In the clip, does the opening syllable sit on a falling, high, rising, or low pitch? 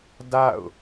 falling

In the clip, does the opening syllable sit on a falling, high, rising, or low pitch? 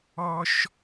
high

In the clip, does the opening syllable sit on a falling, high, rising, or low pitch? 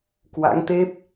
rising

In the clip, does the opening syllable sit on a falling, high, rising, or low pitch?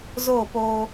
falling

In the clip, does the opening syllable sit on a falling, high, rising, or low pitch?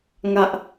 high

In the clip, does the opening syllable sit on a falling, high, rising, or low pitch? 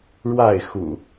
falling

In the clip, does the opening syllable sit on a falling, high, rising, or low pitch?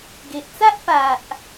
low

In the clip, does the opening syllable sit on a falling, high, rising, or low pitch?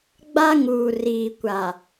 high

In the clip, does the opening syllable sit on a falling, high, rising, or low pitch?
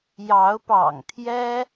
rising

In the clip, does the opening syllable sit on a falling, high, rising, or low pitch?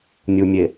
low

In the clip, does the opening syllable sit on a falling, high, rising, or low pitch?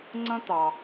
high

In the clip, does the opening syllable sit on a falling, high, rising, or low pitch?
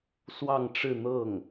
falling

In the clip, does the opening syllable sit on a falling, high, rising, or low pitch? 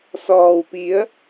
low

